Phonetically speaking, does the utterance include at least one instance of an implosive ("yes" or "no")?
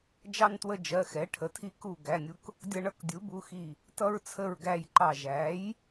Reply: no